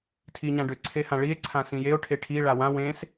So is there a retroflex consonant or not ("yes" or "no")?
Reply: yes